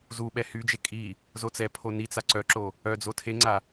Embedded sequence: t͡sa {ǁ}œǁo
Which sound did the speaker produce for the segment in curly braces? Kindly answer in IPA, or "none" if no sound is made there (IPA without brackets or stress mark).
ǀ